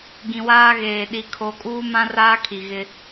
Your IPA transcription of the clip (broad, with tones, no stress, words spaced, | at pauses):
ɡĩ˨waː˦ɣeː˨ ɗi˨˦kʰo˨˦kʼuː˦ mã˦raː˦ kʰi˨ɣɪ˦